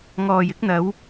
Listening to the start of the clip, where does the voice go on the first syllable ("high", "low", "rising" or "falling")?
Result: low